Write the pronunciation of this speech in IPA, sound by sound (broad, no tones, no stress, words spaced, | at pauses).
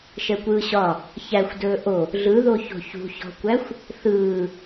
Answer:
ʃɛkʷɯːɕɒ | çæxʷ dɵːʔo | ɮɯðo ço̤çṳçɔ̤kʷæxʷ | θɯː